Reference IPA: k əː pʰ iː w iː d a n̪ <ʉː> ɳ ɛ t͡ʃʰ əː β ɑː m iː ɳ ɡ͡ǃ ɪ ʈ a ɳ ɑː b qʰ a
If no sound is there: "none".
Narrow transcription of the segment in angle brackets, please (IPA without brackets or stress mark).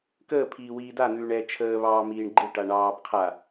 ʉː